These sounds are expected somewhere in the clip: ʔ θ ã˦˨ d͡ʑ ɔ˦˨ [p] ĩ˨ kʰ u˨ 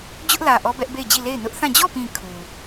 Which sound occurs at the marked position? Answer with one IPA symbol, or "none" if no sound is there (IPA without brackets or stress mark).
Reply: p